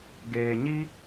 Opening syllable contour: low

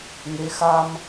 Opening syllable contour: rising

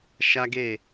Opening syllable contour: high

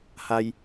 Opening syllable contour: high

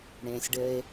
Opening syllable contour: low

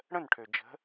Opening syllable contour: falling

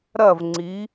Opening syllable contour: falling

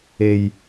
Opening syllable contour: low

